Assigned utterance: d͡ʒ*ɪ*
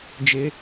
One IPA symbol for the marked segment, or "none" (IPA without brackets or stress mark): ɪ